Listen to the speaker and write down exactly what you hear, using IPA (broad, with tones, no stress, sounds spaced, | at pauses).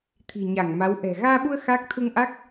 t̪ʰ i̤˨˩ ɲ a˧˩ ŋ m a˨˦ w ʔ ɛ̤˨˩ ɣ aː˧ ɓ u˧ ə̯ x a˦˥ k̚ t̪ʰ u˧ ŋ ʔ a˦˥ k̚